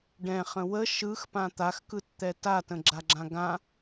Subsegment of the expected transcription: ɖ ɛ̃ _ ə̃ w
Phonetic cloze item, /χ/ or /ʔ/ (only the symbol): χ